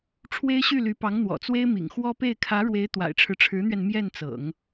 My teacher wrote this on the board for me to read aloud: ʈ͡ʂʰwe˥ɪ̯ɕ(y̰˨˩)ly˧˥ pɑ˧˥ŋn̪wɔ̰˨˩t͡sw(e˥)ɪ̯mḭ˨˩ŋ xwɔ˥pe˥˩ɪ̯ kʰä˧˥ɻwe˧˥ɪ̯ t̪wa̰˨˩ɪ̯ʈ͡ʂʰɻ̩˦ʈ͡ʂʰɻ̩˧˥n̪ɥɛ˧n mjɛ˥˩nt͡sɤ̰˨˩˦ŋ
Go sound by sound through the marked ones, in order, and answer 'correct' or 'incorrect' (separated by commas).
incorrect, correct